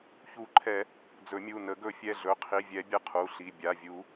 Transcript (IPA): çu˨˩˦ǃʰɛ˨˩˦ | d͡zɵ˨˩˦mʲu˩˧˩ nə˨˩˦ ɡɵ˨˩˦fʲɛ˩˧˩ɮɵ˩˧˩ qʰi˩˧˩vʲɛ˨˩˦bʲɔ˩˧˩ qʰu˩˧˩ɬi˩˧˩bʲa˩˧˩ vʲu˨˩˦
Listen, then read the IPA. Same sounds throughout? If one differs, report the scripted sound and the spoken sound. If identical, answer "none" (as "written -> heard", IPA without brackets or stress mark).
ɔ˩˧˩ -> ə˩˧˩